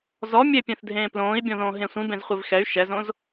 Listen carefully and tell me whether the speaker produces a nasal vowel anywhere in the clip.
yes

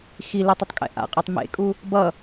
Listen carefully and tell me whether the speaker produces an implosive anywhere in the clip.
no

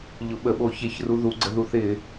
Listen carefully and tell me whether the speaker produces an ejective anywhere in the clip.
no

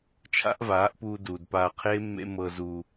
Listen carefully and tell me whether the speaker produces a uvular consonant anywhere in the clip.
yes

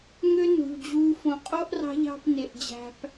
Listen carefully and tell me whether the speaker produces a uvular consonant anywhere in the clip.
yes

